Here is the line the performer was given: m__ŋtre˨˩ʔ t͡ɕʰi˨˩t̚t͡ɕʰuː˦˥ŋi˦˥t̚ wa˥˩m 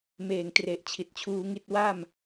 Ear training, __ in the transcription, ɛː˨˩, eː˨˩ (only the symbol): eː˨˩